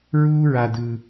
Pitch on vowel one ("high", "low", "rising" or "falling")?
high